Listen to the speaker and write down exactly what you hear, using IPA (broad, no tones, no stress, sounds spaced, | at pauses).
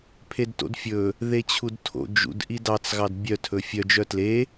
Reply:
pʰ e d t o̰ d fʲ ɵ | ð e t͡ɕʰ u d tʰ o̰ d͡ʒ ṵ d ʔ i d ɑ t͡s ɣ ɑ d bʲ œ tʰ ɵ fʲ œ d͡ʒ œ t l e